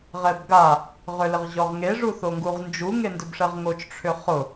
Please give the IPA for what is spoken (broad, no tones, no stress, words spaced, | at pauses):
ʁɛbɡa | ʁʏlɪʁʑɔʁŋe ʐuθoŋɡuʁnd͡ʒu ŋendʏbʂɛʁŋot͡ʃ ʈ͡ʂʰʏχʊ